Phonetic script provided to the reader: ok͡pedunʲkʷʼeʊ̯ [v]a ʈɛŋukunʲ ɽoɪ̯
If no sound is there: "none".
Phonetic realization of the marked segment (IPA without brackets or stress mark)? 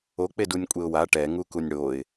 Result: w